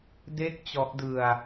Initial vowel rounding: unrounded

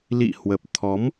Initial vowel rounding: unrounded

